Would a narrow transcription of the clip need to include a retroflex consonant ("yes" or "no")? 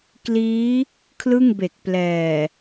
no